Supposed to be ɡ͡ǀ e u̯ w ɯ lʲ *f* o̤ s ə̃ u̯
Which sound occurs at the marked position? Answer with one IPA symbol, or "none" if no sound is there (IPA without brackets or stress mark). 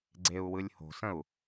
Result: h